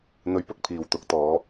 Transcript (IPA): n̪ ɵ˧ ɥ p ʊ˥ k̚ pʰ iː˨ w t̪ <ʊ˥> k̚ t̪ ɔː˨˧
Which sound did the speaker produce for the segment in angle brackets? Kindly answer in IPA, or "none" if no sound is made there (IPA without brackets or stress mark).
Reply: ʊ˨˥